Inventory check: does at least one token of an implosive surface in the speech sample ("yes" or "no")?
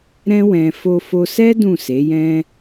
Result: no